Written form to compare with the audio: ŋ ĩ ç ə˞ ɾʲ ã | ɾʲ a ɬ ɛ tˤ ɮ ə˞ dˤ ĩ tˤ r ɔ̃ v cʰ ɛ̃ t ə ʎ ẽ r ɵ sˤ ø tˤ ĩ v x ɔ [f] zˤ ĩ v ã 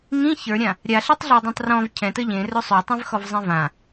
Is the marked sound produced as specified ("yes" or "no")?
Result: no